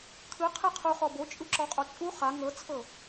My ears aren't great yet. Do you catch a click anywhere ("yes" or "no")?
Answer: yes